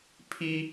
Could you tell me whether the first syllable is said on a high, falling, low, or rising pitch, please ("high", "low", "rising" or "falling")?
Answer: high